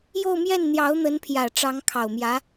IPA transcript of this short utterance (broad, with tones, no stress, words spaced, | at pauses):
jo˥˧ʊ̯mjɛ˥˩n n̪jɑ˧˥ʊ̯n̪ə˧˥npʰjä˨˩ ʈ͡ʂɑ˧˥ŋkʰɑ˨˩ʊ̯mjä˧˥